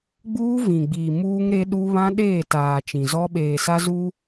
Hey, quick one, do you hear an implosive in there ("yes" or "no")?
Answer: yes